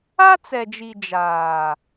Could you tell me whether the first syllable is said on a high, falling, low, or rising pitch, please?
high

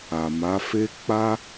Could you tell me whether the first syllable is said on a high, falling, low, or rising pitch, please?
low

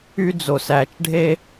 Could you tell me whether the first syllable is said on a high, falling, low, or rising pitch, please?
high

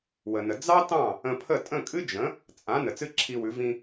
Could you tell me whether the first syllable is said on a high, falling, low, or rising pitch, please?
low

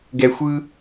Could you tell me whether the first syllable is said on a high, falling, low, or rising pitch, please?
low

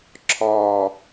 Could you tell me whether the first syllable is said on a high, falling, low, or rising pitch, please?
low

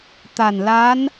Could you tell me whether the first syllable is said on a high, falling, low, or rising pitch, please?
low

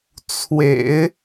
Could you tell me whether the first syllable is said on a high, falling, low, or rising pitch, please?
low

